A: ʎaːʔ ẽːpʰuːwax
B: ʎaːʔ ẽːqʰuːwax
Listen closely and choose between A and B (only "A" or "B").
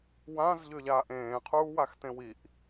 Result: B